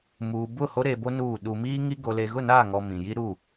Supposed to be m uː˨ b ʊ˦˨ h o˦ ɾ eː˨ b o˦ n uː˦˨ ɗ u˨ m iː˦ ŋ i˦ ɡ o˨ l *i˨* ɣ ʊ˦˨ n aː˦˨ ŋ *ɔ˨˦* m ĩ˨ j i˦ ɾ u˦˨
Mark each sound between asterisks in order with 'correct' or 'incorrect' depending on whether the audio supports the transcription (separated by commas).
incorrect, incorrect